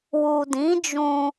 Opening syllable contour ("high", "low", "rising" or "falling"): low